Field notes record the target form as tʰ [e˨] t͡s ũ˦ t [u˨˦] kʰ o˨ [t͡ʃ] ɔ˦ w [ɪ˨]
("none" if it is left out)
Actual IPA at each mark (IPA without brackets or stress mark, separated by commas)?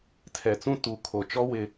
ɛ˨, u˨˦, t͡ʃ, ɪ˦